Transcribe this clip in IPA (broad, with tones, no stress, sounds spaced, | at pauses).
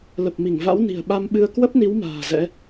l ə˨˩ p̚ m i˧˩ ŋ v a̰˧˥ w n i̤˨˩ ə̯ ɓ a˧ m ɓ ɨ˧ ə̯ k w ə˦˥ p̚ n i˨˦ w m a̤ː˨˩ z ɛ̰˧˥